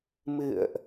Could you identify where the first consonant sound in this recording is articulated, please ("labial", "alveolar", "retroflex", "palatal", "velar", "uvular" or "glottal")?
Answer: labial